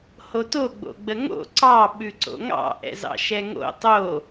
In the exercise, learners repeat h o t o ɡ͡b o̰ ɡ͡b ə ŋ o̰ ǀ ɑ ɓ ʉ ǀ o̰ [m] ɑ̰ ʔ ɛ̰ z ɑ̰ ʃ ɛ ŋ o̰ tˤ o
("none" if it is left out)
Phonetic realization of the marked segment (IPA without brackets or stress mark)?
ŋ